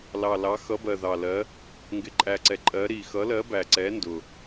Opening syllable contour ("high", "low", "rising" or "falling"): low